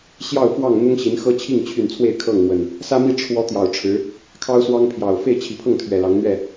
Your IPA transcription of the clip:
ɕ j ɑ˥˨ ʊ̯ f w ɑ˥˨ ŋ n̪ ʊ˦ ŋ ɕ i˨˦ n x ɤ˦ t͡ɕʰ i˥˨ ŋ t͡ɕʰ y˥˨ n t͡sʰ w e˥˨ ɪ̯ kʰ ɤ˥˨ ŋ m w ə˨˩ n | s ä˦ m i˥˨ ʈ͡ʂʰ w ɔ˦ t̪ j ɑ˨˩ ʊ̯ ʈ͡ʂʰ ɻ̩˨˦ | kʰ ɑ˦ ʊ̯ s w ɑ˦ ŋ pʰ j ɑ˨˩ ʊ̯ f e˥˨ ɪ̯ t͡ɕʰ i˨˦ pʰ ɤ˥˨ ŋ t̪ʰ ɥ ɛ˨˩ l ɑ˨˦ ŋ n̪ ɥ ɛ˥˨

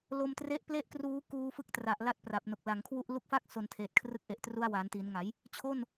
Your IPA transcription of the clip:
l o˧ m t r e˦˥ ʔ p l e˥˩ ʔ k r uː˦˥ k uː˧ f ɯ˦˥ k̚ t r a˨˩ ʔ l a˥˩ t̚ p r a˨˩ p̚ n o˨˩ k̚ l a˩˦ ŋ kʰ w u˥˩ ʔ l u˦˥ k̚ f a˥˩ k̚ s o˨˩ n tʰ eː˨˩ t̚ kʰ r ɯ˦˥ k̚ ʔ e˨˩ ʔ t r u˦˥ a̯ w aː˩˦ n t iː˩˦ n ŋ a˩˦ j | t͡ɕʰ o˥˩ n

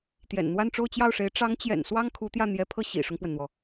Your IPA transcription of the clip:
t̪ j ɛ̰˨˩ n n̪ w a˥˧ n ʈ͡ʂ o˥˧ ʊ̯ t͡ɕ j ɑ˥˩ ʊ̯ ʂ e˧˥ ɪ̯ ʈ͡ʂ ɑ˧˥ ŋ t͡ɕ j ɛ̰˨˩ n s w ɑ˥ ŋ kʰ u˧˥ t̪ j ä˥˩ n̪ j ɛ˧˥ pʰ ɤ˥˩ ɕ ḭ˨˩ ʂ ʊ˦ ŋ p w ə˩ n n̪ w ɔ˩

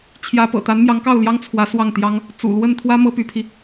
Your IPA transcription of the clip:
t͡ɕʰ j ä˧˥ p ɤ̰˨˩ t̪ a˧˥ n m j ɑ˧˥ ŋ k ɑ˥˩ ʊ̯ l j ɑ˥ ŋ t͡sʰ w ä˧˥ s w ɑ˥˩ ŋ t̪ j ɑ˥ ŋ | t͡s ṵ˨˩ l w ə˥˩ n t̪ʰ w ä˥ m ɤ˥ p y˧˥ pʰ i˧

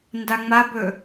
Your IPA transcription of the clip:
n d a ŋ͡m a b ɵ

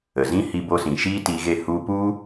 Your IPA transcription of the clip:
ə˨ z ĩ˦ h i˧ b o˧ s ĩ˨ ʃ iː˦ t i˧ ɣ e˦˨ h u˧ p u˦

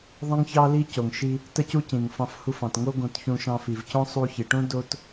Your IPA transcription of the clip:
ðˤ ə̃˥ ŋ ç ɑ˥ l i˥ c o˩ ŋ ʃ i˧ | t ə˥ c u˥ c ĩ˩ ŋ f ɑ̃˧ f h u˧ f ɑ̃˩ t ŋ o˥ ɡ õ˧ t ç ũ˧ ʃ ɑ̃˧ f i˩ v c õ˥ sˤ u˧ ç i˩ ʈ õ˥ d o˥ t

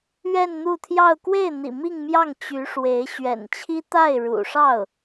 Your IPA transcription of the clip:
ɥ ɛ˥˧ n n̪ u˥˧ t̪ʰ j ɑ˥˧ ʊ̯ k w e˥˩ ɪ̯ n̪ ḭ˨˩ m i˥˧ ŋ m j ɑ˥˩ ŋ t͡ɕ y˧˥ ʂ w e˧˥ ɪ̯ ɕ ɥ ɛ̰˨˩ n t͡ɕʰ i˥ t̪ a˥˩ ɪ̯ ɻ ṵ˨˩ ʂ ɑ˥˩ ʊ̯

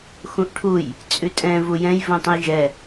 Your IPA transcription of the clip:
x ũ ʔ ʈʰ u j | t͡sʼ ʉ tʼ ɛ̃ v u j ɛ̃ j v ũ tˤ ə̃ j ʒ ɛ

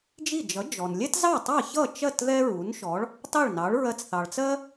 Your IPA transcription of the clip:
d͡ʒ i˥˩ d͡ʒ ʌ˩˥ d͡ʒ ɔ˩ n lʲ ɛ˥ t z ɑ˥˩ tˤ ɑ˥˩ ç ʌ˥˩ t͡ʃ ɜ˥˩ t ð ɛ˥ ɹ u˩˥ n ʃ ɔ˩˥ ɭ | tˤ ɛ˥˩ ɭ n ɑ˩˥ ɭ ɹ ɜ˧ t͡s θ ɑ˩ ɭ t͡s ɜ˥

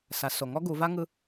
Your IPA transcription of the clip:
s a˩˧ s o˩ ŋ ɔ˥ ɡ u˩˧ v a˥ ŋ ɯ˥

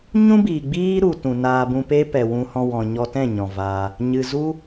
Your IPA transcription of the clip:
ɲ ũ˦ b iː˨ ɡ͡b iː˦ ɾ u˨ t ũ˨ n aː˧ b ũ˧ p e˦ p ɛ˨ w ũ˧ h ɔ̃˧ w ɔ̃˨ ɲ ɔ˧ t ɛ̃˦˨ ɲ ɔ̃˨ v aː˧ | ɲ ɨ˨ z u˦

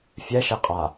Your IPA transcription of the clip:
fʲ ɛ ʃ e qʼ a

